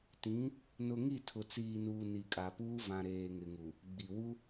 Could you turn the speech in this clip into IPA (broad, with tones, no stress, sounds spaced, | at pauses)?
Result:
t ĩ˨˦ | n ʊ˨ ŋ i˦˨ tʰ ʊ˨ t͡s iː˨ n uː˨ n i˨ kʼ a˨ p uː˦ v ã˨ ɾ eː˨ ŋ ɪ˨ ŋ u˨ | ɡ͡b i˨ w u˦